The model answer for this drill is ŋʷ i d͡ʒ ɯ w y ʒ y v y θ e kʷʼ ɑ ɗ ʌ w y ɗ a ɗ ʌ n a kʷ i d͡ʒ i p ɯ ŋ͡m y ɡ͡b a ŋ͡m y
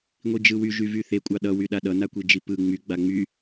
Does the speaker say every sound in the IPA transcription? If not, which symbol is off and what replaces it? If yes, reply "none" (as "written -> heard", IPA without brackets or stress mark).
none